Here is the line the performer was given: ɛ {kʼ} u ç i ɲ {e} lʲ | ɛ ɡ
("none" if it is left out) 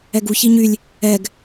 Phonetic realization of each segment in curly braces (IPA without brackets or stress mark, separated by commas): ɡ, y